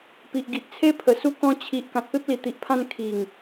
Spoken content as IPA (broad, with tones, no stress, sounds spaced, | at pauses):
p i˨ ʔ ɡ i˨ ʔ t͡sʰ e˦ pʰ ə˨˩ s u˧ k ɔ̃˧ t͡ɕʰ i˨ ʔ k ã˨ t̚ p e˦ p̚ l i˨˩ t̪ i˨ ʔ pʰ ã˧ n kʰ i˨˩ ŋ